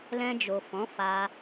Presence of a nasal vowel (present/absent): present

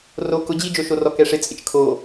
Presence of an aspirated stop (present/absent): present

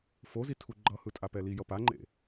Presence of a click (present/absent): present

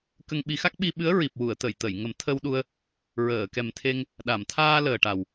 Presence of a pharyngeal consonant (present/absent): absent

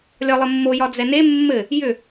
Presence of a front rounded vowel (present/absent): present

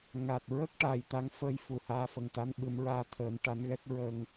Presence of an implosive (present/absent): present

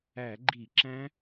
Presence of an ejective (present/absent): absent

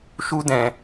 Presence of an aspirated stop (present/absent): absent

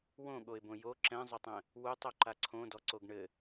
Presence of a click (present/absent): present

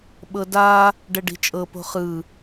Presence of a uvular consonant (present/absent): present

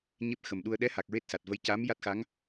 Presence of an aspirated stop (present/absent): absent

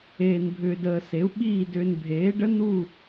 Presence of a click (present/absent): absent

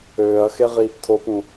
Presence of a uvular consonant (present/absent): present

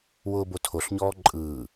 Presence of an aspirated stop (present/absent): present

